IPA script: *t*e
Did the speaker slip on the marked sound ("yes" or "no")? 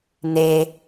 yes